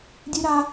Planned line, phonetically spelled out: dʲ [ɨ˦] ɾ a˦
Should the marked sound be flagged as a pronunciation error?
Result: yes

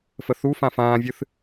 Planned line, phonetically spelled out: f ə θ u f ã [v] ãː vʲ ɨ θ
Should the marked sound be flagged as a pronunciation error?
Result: yes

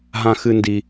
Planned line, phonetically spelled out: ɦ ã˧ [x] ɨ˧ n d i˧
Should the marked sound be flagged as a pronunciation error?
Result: no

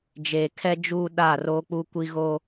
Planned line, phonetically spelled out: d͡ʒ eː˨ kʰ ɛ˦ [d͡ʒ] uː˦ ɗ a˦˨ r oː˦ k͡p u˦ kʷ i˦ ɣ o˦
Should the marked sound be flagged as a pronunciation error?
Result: no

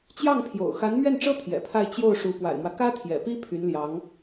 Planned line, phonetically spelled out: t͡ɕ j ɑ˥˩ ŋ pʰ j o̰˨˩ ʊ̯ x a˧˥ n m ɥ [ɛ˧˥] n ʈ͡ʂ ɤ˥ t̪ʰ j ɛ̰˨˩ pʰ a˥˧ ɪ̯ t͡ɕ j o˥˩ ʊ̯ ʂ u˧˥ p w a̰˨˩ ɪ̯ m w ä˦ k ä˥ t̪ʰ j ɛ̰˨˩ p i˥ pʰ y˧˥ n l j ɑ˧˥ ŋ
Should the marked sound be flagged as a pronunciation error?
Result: yes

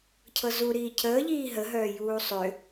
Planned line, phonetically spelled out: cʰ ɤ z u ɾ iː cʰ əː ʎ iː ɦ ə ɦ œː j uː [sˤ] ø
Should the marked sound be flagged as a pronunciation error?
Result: no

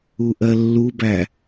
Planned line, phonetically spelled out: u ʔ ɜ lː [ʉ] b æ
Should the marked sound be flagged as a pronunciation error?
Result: yes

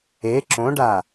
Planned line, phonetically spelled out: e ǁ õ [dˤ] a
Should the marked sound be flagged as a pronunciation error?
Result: yes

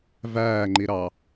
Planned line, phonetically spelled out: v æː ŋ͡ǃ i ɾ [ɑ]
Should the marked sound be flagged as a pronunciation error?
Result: no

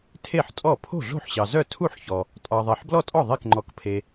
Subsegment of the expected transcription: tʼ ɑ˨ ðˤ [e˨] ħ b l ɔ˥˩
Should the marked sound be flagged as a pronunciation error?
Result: no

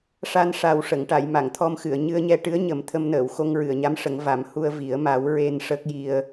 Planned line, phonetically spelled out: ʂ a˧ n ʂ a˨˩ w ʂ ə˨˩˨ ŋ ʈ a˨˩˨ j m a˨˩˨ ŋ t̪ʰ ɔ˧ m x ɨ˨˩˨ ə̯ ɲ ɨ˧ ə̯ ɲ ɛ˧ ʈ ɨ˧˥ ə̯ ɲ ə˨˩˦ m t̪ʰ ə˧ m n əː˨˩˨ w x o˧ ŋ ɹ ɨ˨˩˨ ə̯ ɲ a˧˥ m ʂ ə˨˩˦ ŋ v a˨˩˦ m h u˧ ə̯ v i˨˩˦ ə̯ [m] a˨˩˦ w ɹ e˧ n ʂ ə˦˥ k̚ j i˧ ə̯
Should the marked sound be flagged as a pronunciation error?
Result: no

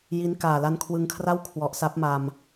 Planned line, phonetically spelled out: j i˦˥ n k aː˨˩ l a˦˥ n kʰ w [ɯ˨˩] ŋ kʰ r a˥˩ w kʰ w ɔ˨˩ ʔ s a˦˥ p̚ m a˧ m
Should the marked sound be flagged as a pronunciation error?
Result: yes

